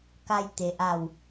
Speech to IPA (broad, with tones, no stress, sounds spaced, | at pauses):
k a˧ j t̪ e˩ ʔ a˧˩ w